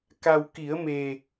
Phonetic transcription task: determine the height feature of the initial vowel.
low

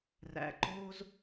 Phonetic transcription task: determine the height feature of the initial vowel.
low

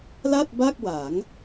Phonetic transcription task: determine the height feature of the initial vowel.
low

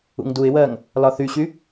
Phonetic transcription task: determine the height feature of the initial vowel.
high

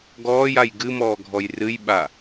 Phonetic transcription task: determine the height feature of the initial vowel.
mid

